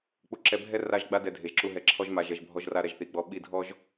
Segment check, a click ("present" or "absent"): present